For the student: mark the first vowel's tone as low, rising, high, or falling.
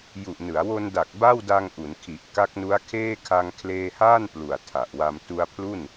low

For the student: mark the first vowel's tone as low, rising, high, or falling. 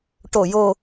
low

